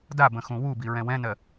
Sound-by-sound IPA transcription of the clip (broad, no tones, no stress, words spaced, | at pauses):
dabə̃ xũwubi ɹɛ̃wɛ̃nɜ